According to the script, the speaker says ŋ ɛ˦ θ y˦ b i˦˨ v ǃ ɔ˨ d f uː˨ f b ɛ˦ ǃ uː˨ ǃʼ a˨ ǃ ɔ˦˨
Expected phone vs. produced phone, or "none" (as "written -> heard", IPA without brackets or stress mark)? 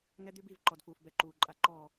θ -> d̪